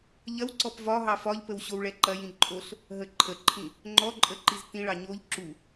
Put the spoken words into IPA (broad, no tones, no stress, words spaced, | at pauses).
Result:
ʎɐwǀɔp vɒɦɑ fɒʎpəw ɕowɭɛǃɐjĩ ǃʼoɬ | ɦəǃʰəǃʰĩ | ŋ͡ǃɔǃʼə ǃiztĩɭɑ ɲoʎ ǁu